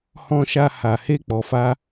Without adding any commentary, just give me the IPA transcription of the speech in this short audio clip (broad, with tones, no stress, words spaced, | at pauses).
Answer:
hɔ̃˧ʃa˧ ha˨he˧ k͡pɔ˨ fa˧